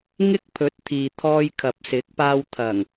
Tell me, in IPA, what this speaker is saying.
ŋ ɪ˥ k̚ pʰ ɵ˨˥ t̚ t̪ʰ iː˨ t̪ʰ ɔː˧ j kʰ ɐ˨ p̚ s ɪ˨˥ k̚ p aː˧ w t̪ʰ ɐ˨˩ ŋ

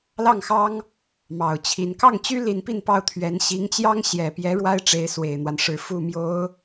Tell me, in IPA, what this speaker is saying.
l ɑ˥˩ ŋ x ɑ˥ ŋ | m ɑ˨˩ ʊ̯ t͡ɕʰ i˧˥ n k ɑ˥˩ ŋ t͡ɕ y˥ l i˧˥ n p i˥˧ n p ɑ˥˩ ʊ̯ t̪ʰ ɥ ɛ˧˥ n ɕ i˧˥ ŋ t͡ɕ j ɑ˥ ŋ ɕ j ɛ˨˩ p j ɛ˧˥ ɻ w a˥ ɪ̯ ʈ͡ʂ e˧˥ ɪ̯ s w e˨˩ ɪ̯ n̪ w a˦ n ʂ ɻ̩˧˥ f u˥˩ m j o˧˥ ʊ̯

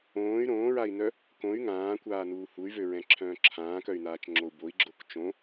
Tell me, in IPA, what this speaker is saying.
õː y̯ ɾ õː ɹ a i̯ n œ | k õ y̯ ŋ ãː kʷ aː n uː h u y̯ v ø ɹ ɛ̃ ǁʰ œ̃ː ǁʰ ãː k œ y̯ n aː t͡ʃ ŋ͡ǁ o u̯ b o i̯ ɡ͡ǁ o k t͡ʃ õ

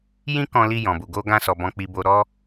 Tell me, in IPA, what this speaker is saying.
j ĩ˦ k ɔ̃˧ l i˧ j ɔ̃˨ b u˨ ɡ o˧ ɡ ã˧ s ɔ˨ b ɔ̃˨ k͡p i˨ b o˨ ɾ ɔ˧

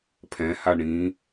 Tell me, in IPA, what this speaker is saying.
pʰ ɛ̃ h a ɳ ĩ

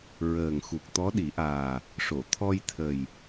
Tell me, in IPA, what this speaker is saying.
ɹ əː˨˩ ŋ x u˨˩ k̚ t̪ ɔ˧˥ ɗ i˨˩˦ ʔ aː˨˩ | ʂ o˨˩˨ t̪ʰ ɔ˧ j t̪ʰ ə˨˩ j

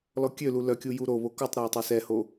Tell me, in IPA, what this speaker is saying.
l ɔ kʲ ø l u l œ kʲ u j u ɾ o β o k o tˤ ɾ ɛ ɪ̯ tˤ ø s ɛ h o

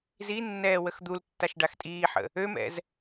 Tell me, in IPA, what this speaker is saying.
z i nː ɛː w ə x d̪ u l tː a ʃ ɖ a x tʼ iː ħ ə̰ | ø m ɛ̰ z

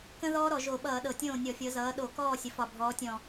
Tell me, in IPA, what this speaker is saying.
k ə̃˥ ð ɔː˥ ɾ ɔ˧˩˧ ʒ o˧˩˧ ɓ ʌː˧˩˧ ɗ ɤ˨˩ tʲ õː˥˩ nʲ ɔ˧˩˧ fʲ ɤ˩˥ z ʌː˩˥ ɗ o˧˩˧ k ɔː˥˩ sʲ ə˩˥ f ɒ˨˩ bʱ ɔː˩˥ tʲ ɔ̃˨˩

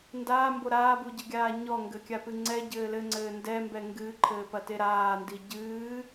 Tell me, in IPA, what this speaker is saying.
n d aː m b o ɾ aː b u ɟ ɨ ɡʲ aː ɲ ɔ ŋ ɡ ɘ kʲ a p ɨ ŋ͡ǀ ɛ ɟ ɘː l ɘ ŋ͡ǀ ɘː n d ɛ m b ɛ ŋ ɡ ɨː ǃʰ ɘː p ɐ t e ɾ aː n d i ɟ ɨː

